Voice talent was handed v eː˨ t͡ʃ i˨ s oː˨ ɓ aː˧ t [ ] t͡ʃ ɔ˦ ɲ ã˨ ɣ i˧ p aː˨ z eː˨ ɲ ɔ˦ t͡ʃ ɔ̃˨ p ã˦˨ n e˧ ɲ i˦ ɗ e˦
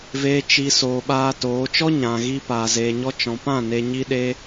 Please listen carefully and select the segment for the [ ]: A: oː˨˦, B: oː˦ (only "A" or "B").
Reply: A